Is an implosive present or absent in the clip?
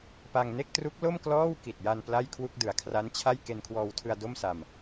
absent